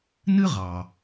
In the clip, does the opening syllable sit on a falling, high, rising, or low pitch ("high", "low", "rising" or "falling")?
high